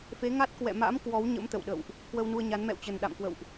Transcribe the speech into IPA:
fe˨˦ŋa˦˥t̚ kwɛ̰˧˨ma̰˧˥mkwɔ˨˦w ɲə̰˧˥mt̪ə̰˧˨wɗə̰˧˨wʔ | kwə˧wnu˧ə̯ɲa˨˦n mɛ̰˧˨wt͡ɕə˨˩nɗa̰˧˨mkwə̰˧˨wʔ

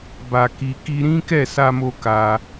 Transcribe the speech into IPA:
ba˨ ki˧ ki˧ɾĩ˦kɛ˦˨ sa˧mo˧ ka˧

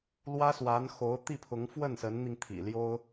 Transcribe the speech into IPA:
lwä˥swa˧˥nxo˧˥ʊ̯ t̪i˥˩pʰʊ˧˥ŋ fwə˥˩nsə˧˥nn̪i˧ŋ t̪ʰḭ˨˩ljo˥ʊ̯

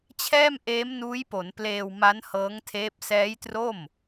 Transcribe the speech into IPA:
t͡ɕʰɛː˥˩m ʔeː˦˥mnuː˦˥jpo˩˦n pleː˧wma˦˥n hɤː˦˥ŋtʰeː˦˥p̚ sɛː˦˥jtro˥˩m

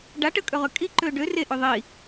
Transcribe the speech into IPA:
ɖa ʈəkʼøʁø kʼiǃø ɖø reʔø ðˤi

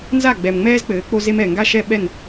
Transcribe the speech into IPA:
nza˦˨ɡ͡bɛ˨m ŋ͡mɛː˦zk͡pɘː˨˦ k͡po˦ze˦m ɛ˨ ŋɡa˦ʃɛ˦ ɓɛ˦˨n

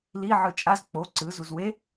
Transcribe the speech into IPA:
li ʕɯt͡ʃʼaz k͡po ǀɯ zuzwe

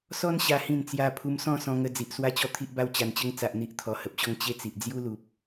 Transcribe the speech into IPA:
sɔ˦n ɕa˦hĩ˥˧nt͡sja˦ pʰu˧msɔ̃˥˧sɔ̃˧ŋə˧ d͡zi˨ʔ swa˦t͡ɕɔ˥˧ t̪ʰi˦ʔba˦wt͡ɕa˧n t͡ɕə˧ŋt͡sa˨ʔn̪i˨ʔt̪ʰɔ˨˩ hə˨p̚ɕɔ˥˧ŋ t͡ɕe˦t͡si˨ʔ d͡zju˦lu˨p̚

